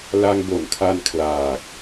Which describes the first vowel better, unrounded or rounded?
unrounded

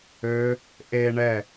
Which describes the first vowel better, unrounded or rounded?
rounded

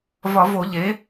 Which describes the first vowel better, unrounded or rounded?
rounded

